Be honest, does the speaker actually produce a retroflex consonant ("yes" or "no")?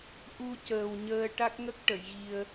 yes